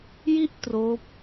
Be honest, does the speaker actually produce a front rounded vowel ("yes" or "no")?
no